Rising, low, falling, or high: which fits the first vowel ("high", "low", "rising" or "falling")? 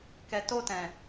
low